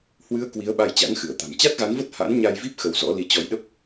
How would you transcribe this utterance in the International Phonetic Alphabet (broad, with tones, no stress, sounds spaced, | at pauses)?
h w ɨ˨˦ ə̯ k w i˨˦ ə̯ ɓ a˧ j t͡ɕ a̰˧˥ ŋ x ɨ˧˩ ə̯ t̪ a̤˨˩ m t͡ɕ a˦˥ t̚ ɣ a˨˦ n v ə˦˥ t̚ h a̰˧˥ n ɲ a˧ j v i˦˥ p̚ x ə˧ w z ɔ̰˧˥ l i˨˦ t͡ɕ ɔ˨˦ j ɗ ə˦˥ p̚